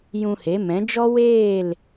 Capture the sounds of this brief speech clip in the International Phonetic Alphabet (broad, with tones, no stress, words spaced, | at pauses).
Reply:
jũ˧he˨˦mɛ̃˨˦ d͡ʒɔ˦weː˦˨l